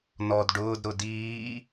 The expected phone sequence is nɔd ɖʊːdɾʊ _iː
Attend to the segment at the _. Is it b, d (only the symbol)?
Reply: d